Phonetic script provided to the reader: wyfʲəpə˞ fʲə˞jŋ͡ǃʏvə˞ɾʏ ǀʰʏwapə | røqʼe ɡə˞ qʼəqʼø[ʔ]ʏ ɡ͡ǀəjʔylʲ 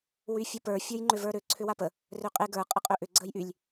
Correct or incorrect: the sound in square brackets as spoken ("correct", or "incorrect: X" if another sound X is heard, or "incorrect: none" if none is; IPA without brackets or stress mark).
correct